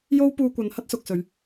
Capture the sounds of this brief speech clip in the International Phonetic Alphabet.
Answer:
jo˥wpuː˧kʷɐ˨˧n hɐ˥t̚sʊ˨k̚sɵ˨˧ɥ

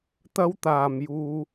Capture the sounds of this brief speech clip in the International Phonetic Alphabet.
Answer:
t̪ɐ˥wt̪aː˨m juː˧

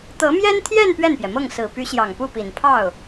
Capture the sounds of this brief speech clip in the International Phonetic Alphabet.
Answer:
t̪ɤ˧˥mjɛ˥nt̪ʰjɛ˥˧n pɥɛ˥˩npjɛ˩mɤ˥˩ŋ sɹ̩˨˩py˧˥ɕjɑ˨˩ŋ pu˥˩pi˨˩n pʰɑ˥˩ʊ̯

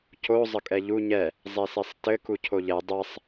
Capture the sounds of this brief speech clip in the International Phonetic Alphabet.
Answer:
co zˤəkʼɛʎu ɲɛ | zˤesesˤtɘ kucʰoʎɛ dˤɛsˤ

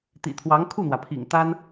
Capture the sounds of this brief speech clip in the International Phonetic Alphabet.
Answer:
t̪ḭ˨˩t̪ʰwɑ˧˥ŋ kʰu˥˩n̪wä˩pʰḭ˨˩ŋ t̪a˥n

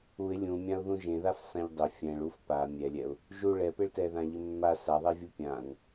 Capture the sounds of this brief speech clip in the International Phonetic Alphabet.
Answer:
uɪ̯ lʲũmʲãʊ̯ðũ ʒẽðaf sãʎdˤʊ fʲɛ̃ɭuf pa mʲɛlʲɛʊ̯ | ʒu ɭɛpɪɭtɛðã ʎɪmːa saðˤɛvʲu pʲãn

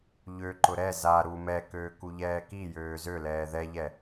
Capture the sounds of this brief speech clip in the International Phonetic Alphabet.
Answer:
ʎøǃʊ ɾɛ za ɾu mɛkøː kuʎɛːkijøː zølɛː ðɛʎɛ

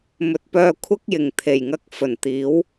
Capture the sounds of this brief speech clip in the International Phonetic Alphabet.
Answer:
mɵ˨t̚pœː˧ kʷʰɐ˥k̚ jɪ˨ŋ t̪ʰe˨˩jŋɐ˧k̚ fɵ˨˩nt̪iː˨˥w

